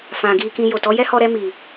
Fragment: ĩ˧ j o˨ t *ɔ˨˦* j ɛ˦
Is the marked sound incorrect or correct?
correct